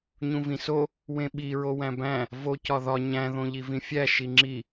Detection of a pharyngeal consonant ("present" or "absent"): absent